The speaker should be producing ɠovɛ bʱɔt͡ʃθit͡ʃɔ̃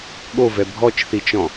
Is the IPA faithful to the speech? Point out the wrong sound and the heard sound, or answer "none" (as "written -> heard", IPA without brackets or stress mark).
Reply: none